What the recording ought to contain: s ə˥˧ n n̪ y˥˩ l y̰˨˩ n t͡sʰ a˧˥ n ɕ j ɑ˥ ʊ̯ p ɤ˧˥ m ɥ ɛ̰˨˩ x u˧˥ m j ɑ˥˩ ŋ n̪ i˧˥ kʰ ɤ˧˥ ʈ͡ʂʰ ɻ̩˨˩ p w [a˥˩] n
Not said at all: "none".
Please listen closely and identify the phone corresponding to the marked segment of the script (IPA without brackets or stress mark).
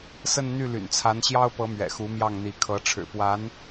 a˧˥